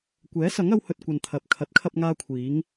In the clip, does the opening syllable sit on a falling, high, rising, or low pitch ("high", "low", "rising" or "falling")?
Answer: rising